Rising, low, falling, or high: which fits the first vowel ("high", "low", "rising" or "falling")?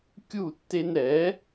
falling